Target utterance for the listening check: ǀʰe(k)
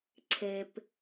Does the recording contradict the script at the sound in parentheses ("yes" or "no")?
yes